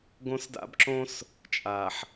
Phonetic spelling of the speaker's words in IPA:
ɡ õ˦ s d a̰˦ b ǁ õ˦ s | t͡ʃʼ a˨ ħ

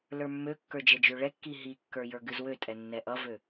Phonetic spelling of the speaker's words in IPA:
l ə˞ mː ø kː ə˞ d͡ʒ ɛ d͡ʒ ø ɭ ɛ kː i ɦ i kː ə˞ j ə˞ ɡ ɨ z w ø tʼ ɛ nː ɛ ʔ ʌ v ø

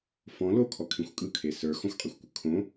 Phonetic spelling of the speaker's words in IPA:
f ɔ̃ l o kʰ ɔ kʰ ĩ xʷ kʼ ɯ kʰ e s ə˞ x ɔ̃ xʷ qʼ i xʷ kʷ ɯ kʰ õ

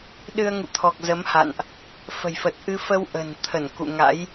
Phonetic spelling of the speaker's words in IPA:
ɗ ɨ˧ ə̯ ŋ ṵ˧˨ t̪ʰ ɔ˨˩ k̚ z ə˨˦ m h a̰˧˨ n ʔ | f ə̤˨˩ j f ə˨˩ t̚ ʔ ɨ˧ f ə˧ w ʔ ə̤˨˩ n t̪ʰ ə˧˩ n k ṵ˧˨ ŋ a̰˧˥ j

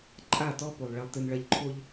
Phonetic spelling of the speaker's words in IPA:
ǃʼ a˦˨ t ɔ˦ p o˨ lˠ ɭ ɛ˨ lˠ t ɨ˨ n ɭ ɐ˦ ʎ ǃʰ o˦ ʎ

